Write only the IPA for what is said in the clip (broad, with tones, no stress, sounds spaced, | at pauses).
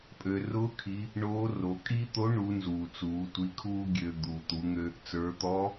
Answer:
pʼ ø˩ r ʊː˧˥ kʰ i˩˧ | ɳ oː˧˥ r o˩˧ kʼ i˥ t̪ o˧˥ ɳ u˩˧ n z uː˩ t͡s uː˩˧ tʷ i˧˥ kʰ uː˥ ɡʲ ø˧ d̪ uː˩ t̪ u˩˧ ŋ ø˧ | t͡s ə˞˩˧ t̪ ɔ˧˥